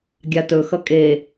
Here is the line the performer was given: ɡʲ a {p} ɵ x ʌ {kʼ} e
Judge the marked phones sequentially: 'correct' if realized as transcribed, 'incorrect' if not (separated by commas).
incorrect, correct